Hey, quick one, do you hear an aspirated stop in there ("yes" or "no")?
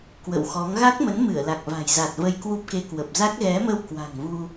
no